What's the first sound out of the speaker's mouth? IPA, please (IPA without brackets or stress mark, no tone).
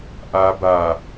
ʔ